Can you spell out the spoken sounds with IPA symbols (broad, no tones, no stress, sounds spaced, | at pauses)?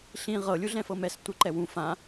ɬ ĩ ʁ ɤ lʲ u ɮ ɛ̃ f ɤ m ɛ s tʷ ɯ ǃ ɛ w ũ f ã